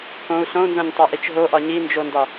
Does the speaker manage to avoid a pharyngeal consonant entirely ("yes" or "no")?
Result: yes